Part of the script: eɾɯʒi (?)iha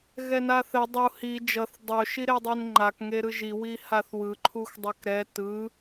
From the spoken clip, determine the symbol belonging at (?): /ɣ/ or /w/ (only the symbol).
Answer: w